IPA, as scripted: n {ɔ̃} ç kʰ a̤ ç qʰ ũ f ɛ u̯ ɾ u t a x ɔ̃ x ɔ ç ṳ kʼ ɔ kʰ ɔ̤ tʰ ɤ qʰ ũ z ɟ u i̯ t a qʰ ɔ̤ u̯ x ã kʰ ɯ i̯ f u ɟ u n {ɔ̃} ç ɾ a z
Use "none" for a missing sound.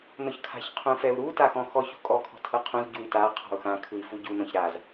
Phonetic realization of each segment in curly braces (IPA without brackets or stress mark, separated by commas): ɔ, ɔ̃